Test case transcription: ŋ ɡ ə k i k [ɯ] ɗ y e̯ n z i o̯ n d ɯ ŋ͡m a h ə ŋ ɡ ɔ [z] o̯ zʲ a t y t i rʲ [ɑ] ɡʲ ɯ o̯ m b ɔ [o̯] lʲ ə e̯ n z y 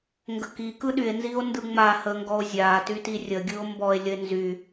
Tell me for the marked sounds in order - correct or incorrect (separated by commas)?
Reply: correct, incorrect, incorrect, incorrect